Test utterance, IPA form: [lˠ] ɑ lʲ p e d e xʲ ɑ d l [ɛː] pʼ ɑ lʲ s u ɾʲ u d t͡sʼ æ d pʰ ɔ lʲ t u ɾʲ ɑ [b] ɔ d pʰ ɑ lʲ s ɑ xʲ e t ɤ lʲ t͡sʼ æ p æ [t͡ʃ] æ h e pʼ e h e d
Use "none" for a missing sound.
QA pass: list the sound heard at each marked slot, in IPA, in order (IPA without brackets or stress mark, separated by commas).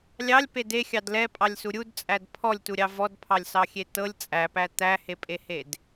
lʲ, ɛ, v, t̪